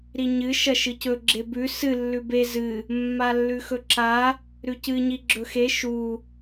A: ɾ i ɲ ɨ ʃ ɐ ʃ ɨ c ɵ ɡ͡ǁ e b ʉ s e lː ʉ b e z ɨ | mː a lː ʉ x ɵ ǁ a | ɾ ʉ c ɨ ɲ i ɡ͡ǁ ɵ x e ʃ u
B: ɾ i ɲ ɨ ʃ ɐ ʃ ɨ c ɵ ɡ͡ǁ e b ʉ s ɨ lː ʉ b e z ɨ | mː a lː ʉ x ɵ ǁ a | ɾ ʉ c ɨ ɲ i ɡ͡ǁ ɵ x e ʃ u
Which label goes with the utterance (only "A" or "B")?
B